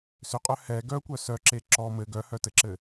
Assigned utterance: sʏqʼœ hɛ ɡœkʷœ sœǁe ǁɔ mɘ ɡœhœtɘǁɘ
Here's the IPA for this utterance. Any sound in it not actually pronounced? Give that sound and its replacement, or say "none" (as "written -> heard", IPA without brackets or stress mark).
none